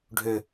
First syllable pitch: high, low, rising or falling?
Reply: high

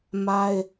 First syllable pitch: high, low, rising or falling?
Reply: high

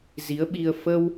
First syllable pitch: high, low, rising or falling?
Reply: rising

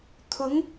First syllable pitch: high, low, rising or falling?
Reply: rising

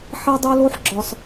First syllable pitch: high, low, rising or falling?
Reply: high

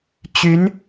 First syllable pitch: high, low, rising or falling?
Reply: rising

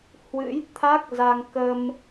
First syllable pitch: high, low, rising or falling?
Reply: rising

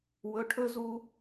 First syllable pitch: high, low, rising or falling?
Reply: rising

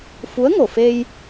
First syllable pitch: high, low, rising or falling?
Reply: rising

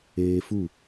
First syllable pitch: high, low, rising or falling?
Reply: high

